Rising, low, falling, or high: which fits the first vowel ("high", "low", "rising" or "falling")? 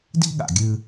high